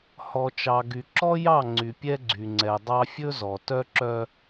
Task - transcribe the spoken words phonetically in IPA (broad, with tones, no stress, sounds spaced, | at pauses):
h ɔ˨ t͡ʃ ɑ˨ ɡ y˨ ǁ ɔ˦ j ɑ˦˨ ŋ͡ǀ y˨ pʲ ɛ˦ ɡ͡ǀ y˨ ŋ͡ǀ ɛ˨ dˤ ɑ˦ fʲ ɵ˦ z ɔ˨ t œ˦ ǁ œ˦